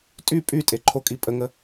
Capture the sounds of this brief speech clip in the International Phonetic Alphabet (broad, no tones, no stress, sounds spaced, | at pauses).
tʼ y pʼ y tʼ e ǃʰ o kʼ i pʼ ə ŋ ə